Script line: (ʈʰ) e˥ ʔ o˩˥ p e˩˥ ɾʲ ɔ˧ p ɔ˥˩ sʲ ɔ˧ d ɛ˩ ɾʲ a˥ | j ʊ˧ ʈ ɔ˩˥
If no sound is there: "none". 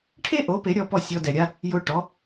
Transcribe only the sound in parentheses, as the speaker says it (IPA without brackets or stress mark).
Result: ʈʰ